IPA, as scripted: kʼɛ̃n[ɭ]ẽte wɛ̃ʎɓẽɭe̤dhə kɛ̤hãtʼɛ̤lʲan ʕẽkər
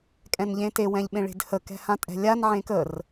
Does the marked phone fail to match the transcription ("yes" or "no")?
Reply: yes